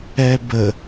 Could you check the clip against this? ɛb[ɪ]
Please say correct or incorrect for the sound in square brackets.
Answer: incorrect